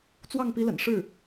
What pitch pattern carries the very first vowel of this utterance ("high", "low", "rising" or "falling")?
falling